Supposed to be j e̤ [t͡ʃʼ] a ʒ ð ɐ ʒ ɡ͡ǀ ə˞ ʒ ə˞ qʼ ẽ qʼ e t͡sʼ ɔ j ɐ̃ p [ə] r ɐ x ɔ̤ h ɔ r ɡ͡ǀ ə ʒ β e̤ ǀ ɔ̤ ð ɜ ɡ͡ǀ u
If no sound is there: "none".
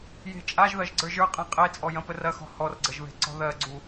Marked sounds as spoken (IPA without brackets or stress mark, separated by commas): t͡ʃʼ, ə